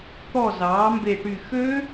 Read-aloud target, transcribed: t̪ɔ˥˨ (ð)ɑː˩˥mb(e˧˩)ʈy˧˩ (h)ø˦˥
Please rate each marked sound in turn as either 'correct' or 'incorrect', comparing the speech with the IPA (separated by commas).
incorrect, correct, incorrect